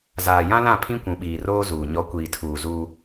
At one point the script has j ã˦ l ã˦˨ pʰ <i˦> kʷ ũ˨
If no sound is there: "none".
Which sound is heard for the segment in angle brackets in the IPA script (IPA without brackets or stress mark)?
ĩ˦